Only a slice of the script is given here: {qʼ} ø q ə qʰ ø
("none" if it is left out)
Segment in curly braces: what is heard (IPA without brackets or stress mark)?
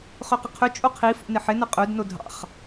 χ